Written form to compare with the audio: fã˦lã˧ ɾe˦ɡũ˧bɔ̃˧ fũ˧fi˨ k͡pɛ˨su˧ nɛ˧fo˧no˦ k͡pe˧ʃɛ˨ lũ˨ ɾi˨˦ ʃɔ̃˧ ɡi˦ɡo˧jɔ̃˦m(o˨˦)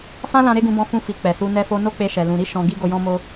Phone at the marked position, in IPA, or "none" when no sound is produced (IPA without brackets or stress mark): o˦